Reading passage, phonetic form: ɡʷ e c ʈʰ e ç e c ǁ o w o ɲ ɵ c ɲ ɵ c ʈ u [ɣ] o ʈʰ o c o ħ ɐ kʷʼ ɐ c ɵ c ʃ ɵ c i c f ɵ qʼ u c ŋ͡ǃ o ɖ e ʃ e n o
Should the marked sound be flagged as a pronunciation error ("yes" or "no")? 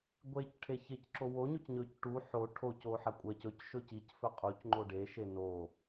yes